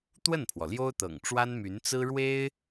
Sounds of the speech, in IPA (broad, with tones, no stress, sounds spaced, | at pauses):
t̪ w ə˥˩ n pʰ w ɔ˩ l j o˥ ʊ̯ t̪ ɤ̰˨˩ ŋ ʈ͡ʂ w a˥ n m y˧˥ n t͡s ɹ̩˥ ɻ w e˥ ɪ̯